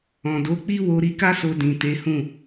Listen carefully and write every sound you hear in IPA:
ɔ̃˨ d o˨˦ k͡p i˦ w o˧ ɾ i˧ k a˦ s o˧ d ĩ˨ t e˨˦ h ũ˦˨

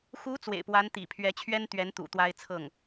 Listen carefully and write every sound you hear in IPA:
x u˧˥ t͡s w ḛ˨˩ ɪ̯ p w a˧˥ n t̪ ḭ˨˩ pʰ ɥ ɛ˧˥ t͡ɕʰ ɥ ɛ˥ n t̪ ɥ ɛ˧˥ n t̪ ṵ˨˩ t̪ w a˥ ɪ̯ t͡sʰ ɤ˥˩ ŋ

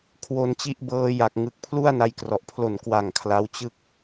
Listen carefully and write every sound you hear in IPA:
kʰ w o˧ n t͡ɕ i˦˥ ʔ b ɤː˧ j a˨˩ k̚ ŋ ɯ˨˩ k̚ pʰ l u˥˩ a̯ n a˧ j k r ɔ˨˩ ʔ pʰ l o˨˩ n k w a˨˩ ŋ kʰ l a˦˥ w t͡ɕ ɯ˥˩ k̚

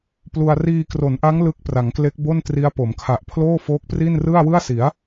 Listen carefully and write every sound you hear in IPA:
p l u˧ a̯ r iː˧ k r o˩˦ n ʔ a˦˥ ŋ l ɯ˦˥ k̚ p r a˩˦ ŋ k l e˦˥ k̚ b o˥˩ n t r i˦˥ a̯ p o˩˦ m kʰ a˨˩ ʔ pʰ l oː˥˩ f oː˦˥ k̚ p r i˥˩ n r ɯ˥˩ a̯ w ɯ˥˩ a̯ s i˩˦ a̯

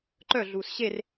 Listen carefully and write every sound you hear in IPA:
ǃ œ ɮ uː s ɕ e r

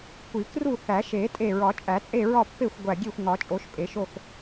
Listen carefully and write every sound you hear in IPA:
kʷ i˨˩˦ k r u˥˨ θ æ˨˩˦ ʃ e˨˩˦ tʼ e˧˩ ɹ ɒ˨˩˦ t͡ʃʼ æ˨˩˦ t͡sʼ e˥˨ ɹ ɒ˥˨ pː e˥˨ xʷ ɡʷ æ˧˩ ɡʲ e˥˨ xʷ ŋ ɒ˨˩˦ t͡ʃʼ o˨˩˦ ʃ pʼ e˨˩˦ ʃ o˥˨ x

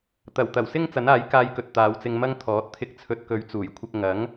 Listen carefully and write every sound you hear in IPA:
t̪ ɐ˨˩ w t̪ ɐ˨˩ w s ɪ˥ ŋ t͡s ɐ˨˥ n aː˨˥ j k aː˧ j k ɵ˨ t̚ t̪ aː˨˧ w t͡s ɪ˧ ŋ m ɐ˥ ŋ t̪ʰ ɔː˨˥ t̚ t̪ʰ ɪ˧ k̚ t͡sʰ ɵ˨˥ t̚ k ɵ˨˧ ɥ t͡s uː˨˩ j kʷʰ ɪ˧ k̚ ŋ ɐ˨˥ ŋ

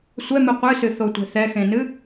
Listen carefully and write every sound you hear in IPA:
sʷ ɛ m ɨ qʷ ɨ s ɨ θ o tʷ ɛ̤ θ ɛ x ẽ n ɨ

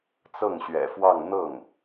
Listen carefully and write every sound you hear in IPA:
t͡s ɤ˥˩ ŋ ɕ ɥ ɛ̰˨˩ f w ɑ˥˧ ŋ n̪ ɤ˥˩ ŋ

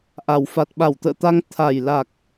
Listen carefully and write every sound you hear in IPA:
ʔ a˨˩ w f a˨˩ t̚ ɓ a˧˩ w t̪ ə̰ː˧˨ t̪ a˧ ŋ t̪ʰ a˨˩ j l a˨˩ k̚

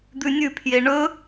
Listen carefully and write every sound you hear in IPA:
d̪ ʉ nʲ ʉ pʰ j e ɳ ɵ

